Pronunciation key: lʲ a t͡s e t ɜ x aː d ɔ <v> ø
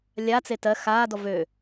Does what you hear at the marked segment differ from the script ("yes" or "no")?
no